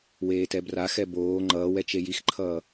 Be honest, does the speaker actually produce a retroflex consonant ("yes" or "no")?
no